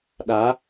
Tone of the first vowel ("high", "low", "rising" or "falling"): rising